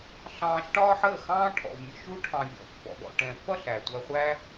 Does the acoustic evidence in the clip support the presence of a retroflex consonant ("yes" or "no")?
yes